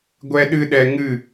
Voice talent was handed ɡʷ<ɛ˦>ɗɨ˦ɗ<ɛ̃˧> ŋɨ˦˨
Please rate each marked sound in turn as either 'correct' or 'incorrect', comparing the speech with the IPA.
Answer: correct, incorrect: ɛ˧

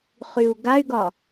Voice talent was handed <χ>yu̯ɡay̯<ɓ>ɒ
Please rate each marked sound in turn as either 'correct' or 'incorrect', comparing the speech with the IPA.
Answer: correct, incorrect: ɡ

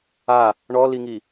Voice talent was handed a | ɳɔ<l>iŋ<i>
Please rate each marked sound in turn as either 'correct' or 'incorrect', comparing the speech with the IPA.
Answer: correct, correct

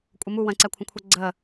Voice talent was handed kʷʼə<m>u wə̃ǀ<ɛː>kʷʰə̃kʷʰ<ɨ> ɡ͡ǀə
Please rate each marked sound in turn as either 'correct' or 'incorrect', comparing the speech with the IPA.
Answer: correct, incorrect: ɛ, incorrect: ɛ

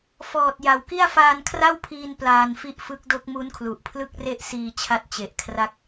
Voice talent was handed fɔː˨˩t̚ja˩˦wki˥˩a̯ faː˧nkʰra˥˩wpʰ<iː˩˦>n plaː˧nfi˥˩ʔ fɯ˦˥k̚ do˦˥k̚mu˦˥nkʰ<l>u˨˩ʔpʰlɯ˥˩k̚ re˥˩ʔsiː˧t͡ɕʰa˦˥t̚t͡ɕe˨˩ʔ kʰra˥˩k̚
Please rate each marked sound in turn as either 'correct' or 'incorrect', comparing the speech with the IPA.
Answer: incorrect: iː˧, correct

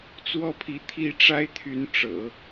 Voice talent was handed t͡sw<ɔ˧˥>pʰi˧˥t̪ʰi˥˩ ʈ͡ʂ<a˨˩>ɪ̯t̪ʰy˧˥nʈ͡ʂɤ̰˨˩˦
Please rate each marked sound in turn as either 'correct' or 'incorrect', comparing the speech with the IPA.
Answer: incorrect: ɔ˥˩, incorrect: a˥

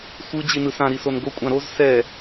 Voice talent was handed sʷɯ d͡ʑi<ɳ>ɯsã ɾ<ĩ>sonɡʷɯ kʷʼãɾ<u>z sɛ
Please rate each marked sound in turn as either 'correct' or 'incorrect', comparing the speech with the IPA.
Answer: incorrect: n, incorrect: i, incorrect: o

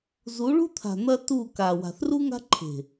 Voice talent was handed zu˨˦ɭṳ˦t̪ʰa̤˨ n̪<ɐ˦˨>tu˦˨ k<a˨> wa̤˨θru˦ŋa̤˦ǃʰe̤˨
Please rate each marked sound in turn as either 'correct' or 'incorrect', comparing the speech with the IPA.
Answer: incorrect: ɐ˦, correct

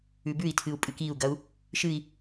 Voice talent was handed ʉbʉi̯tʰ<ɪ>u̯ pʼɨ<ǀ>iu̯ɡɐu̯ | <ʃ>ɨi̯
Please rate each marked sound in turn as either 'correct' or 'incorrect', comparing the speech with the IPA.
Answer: incorrect: ɨ, incorrect: k, correct

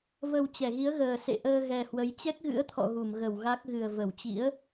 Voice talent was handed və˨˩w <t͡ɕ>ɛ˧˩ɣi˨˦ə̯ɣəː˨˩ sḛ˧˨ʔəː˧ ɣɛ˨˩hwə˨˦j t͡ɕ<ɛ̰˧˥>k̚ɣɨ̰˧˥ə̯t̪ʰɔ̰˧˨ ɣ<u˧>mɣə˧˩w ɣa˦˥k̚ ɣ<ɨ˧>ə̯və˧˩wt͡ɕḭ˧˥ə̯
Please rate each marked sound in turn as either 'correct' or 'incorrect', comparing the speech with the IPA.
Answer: correct, incorrect: ɛ˦˥, incorrect: u˧˩, incorrect: ɨ˨˩

